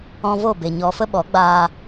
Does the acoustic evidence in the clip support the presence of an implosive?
yes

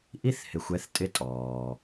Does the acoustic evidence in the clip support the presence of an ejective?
yes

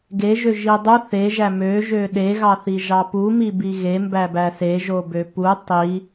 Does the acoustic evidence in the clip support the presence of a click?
no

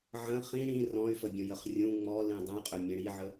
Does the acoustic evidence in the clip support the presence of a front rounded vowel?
yes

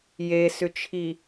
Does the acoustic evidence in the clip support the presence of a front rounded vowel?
yes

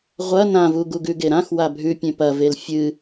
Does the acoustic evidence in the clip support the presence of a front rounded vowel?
no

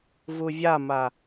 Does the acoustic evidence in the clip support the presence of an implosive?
no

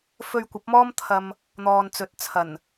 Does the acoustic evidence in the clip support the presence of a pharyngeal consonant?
no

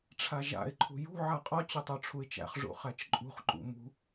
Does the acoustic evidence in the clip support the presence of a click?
yes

